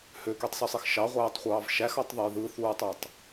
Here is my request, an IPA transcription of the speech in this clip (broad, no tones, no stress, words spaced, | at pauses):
høkytˤsysˤix ʃɑʁʷæːtˤχʷɑːv ʃæxɑtˤðˤæj ðɯθuːtˤɑtˤ